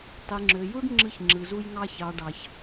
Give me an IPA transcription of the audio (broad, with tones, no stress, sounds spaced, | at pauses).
tˤ i˨ ŋ͡ǁ ø˨ j u˦ ɖ ŋ͡ǁ ɯ˧ ç ŋ͡ǁ ɯ˨ z u˧ j ŋ ɑ˧ ç ɑ˨ ɖ ɑ˨ ç